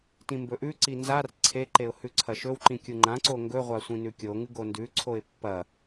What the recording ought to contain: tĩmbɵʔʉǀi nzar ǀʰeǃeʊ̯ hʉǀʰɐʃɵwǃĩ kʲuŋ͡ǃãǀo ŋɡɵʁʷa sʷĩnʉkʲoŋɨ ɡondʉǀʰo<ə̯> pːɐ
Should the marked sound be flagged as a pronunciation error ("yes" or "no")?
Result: yes